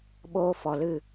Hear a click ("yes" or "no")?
no